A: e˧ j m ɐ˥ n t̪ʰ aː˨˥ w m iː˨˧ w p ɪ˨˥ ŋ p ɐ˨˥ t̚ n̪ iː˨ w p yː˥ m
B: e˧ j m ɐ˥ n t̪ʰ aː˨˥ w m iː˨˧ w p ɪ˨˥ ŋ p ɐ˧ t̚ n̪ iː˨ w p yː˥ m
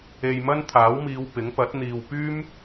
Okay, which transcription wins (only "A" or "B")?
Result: A